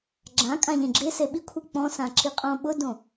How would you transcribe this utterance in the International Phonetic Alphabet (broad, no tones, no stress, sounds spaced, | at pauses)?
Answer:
ɡ͡ǁ ã kʼ ã ʎ ẽ ɡ͡ǁ ɪ s e ɓ i kʷʰ i k͡p ɔ̃ s ã ǁ i qʼ õ ɓ ʊ d õ